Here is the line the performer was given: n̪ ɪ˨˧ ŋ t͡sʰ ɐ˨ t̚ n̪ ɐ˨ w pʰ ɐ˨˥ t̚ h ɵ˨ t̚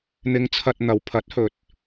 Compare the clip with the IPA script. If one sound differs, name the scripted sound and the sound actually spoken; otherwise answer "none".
none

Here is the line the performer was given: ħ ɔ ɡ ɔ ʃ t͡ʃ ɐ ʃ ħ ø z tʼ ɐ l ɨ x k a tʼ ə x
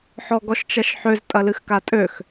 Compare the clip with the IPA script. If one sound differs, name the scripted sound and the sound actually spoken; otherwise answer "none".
ə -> ø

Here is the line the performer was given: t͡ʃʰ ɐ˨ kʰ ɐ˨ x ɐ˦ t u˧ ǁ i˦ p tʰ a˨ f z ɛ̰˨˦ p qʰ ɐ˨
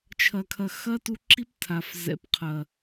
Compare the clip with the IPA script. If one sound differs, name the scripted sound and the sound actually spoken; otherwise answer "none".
none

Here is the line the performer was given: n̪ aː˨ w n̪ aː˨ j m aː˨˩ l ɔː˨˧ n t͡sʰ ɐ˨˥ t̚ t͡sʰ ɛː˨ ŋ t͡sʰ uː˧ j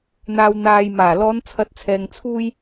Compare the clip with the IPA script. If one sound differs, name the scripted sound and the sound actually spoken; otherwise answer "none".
none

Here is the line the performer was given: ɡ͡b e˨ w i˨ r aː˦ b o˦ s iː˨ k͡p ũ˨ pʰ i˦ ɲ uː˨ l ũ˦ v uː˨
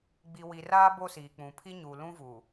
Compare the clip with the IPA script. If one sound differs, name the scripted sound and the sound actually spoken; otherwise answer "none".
e˨ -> i˨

